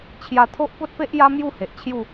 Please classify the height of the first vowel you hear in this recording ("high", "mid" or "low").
low